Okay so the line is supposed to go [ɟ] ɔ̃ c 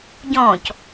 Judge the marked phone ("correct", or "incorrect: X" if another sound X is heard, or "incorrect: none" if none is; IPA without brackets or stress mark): correct